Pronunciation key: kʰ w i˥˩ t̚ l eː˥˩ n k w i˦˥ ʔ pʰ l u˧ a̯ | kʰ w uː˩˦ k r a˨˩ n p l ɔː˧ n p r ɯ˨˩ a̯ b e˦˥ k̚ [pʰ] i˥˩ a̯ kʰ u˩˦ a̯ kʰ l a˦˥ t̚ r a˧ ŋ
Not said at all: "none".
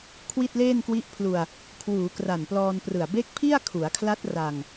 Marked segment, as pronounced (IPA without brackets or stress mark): pʰ